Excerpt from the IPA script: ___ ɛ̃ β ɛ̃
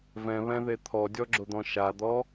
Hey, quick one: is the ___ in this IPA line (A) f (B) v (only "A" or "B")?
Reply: B